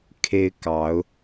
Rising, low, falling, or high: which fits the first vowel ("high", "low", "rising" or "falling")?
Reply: high